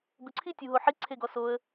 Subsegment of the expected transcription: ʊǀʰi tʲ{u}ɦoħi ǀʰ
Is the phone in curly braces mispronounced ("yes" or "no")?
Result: no